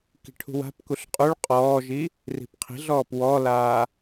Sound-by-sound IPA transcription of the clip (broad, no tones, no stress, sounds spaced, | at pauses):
k i̤ ʈʰ ṳ w a̤ p k u ɬ qʼ u ɭ qʼ ɔː ʒ i | r i̤ p qʰ i̤ ɮ ɔː p w ɔ l aː